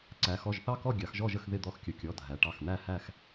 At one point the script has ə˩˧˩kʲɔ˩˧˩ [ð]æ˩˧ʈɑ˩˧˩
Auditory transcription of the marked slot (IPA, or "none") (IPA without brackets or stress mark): dʱ